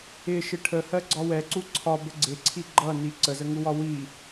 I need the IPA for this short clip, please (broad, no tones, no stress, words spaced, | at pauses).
ɪʃɪ ʈʰəhɜɡ͡ǀɒ wɛǀu ǀʰɒbə ɡ͡ǀɪǀʰi ɡ͡ǃʌni ǀəzəŋuwɒ wi